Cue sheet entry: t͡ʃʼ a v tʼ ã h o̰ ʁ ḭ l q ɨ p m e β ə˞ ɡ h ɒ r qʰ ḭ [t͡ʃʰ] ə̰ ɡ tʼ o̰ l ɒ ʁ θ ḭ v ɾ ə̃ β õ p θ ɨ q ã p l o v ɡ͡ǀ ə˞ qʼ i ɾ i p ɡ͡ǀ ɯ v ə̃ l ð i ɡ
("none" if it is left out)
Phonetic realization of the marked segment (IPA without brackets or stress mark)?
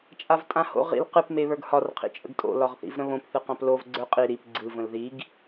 t͡ʃʼ